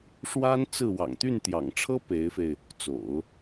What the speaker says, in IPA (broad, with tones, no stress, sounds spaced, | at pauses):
ʂ w a˥ n t͡s ɹ̩˥˩ w ɑ̰˨˩ ŋ t̪ y˥˩ n t̪ j ɑ̰˨˩ ŋ ʈ͡ʂʰ ɤ˥ p e˧˥ ɪ̯ f e˧ ɪ̯ | t͡s o̰˨˩˦ ʊ̯